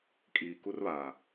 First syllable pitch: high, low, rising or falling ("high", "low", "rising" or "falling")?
low